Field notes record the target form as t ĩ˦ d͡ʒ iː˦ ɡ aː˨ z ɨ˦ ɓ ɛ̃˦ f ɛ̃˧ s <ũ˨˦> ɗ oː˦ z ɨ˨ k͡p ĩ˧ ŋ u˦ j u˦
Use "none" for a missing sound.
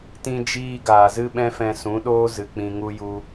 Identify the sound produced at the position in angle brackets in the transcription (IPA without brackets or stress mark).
ũ˨˦